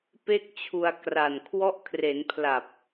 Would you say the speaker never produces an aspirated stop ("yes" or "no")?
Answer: no